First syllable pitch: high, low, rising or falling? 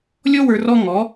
high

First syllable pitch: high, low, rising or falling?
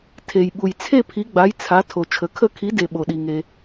low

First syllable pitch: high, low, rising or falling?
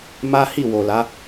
high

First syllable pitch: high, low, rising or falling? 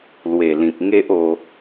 low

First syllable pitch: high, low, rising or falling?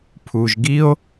low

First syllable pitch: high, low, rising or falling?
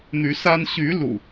rising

